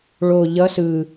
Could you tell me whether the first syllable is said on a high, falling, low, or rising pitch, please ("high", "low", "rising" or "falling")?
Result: low